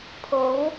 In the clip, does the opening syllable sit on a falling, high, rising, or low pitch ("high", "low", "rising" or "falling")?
rising